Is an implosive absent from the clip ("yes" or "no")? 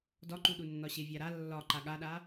no